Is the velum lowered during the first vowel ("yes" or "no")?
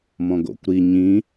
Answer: yes